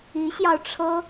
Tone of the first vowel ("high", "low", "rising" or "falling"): rising